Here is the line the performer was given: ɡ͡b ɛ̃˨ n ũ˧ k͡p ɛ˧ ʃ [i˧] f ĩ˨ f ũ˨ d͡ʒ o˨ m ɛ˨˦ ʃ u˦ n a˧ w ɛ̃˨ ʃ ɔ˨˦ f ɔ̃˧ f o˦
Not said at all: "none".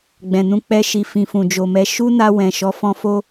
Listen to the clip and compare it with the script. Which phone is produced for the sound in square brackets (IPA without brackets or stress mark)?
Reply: i˨